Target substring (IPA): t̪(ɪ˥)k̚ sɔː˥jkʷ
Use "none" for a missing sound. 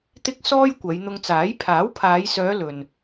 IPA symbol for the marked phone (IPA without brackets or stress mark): ɪ˥